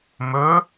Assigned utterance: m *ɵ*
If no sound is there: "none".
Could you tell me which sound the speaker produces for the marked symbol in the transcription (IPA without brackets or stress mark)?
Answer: ɵ